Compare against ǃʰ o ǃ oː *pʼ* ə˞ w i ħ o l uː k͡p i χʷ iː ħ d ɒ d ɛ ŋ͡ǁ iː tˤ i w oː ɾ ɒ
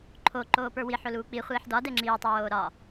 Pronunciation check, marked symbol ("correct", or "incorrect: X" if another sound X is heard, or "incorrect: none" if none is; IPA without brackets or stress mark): incorrect: p